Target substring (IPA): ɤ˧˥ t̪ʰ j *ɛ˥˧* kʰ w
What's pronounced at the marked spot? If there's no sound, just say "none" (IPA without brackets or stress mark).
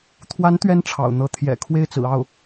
ɛ̰˨˩